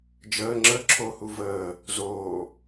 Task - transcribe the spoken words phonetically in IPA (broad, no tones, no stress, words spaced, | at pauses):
d͡ʒəː ŋ͡ǁə ǁʰohu vəː | zoː